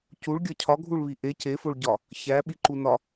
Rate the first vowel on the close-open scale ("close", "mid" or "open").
close